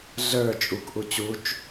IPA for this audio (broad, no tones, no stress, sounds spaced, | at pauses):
ɮ ə˞ t͡ʃʼ u k ʔ u t͡ɕ u t͡ʃ